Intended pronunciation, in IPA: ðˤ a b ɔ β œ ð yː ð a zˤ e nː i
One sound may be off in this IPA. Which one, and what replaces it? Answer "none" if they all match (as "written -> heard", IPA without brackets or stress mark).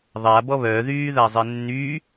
i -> y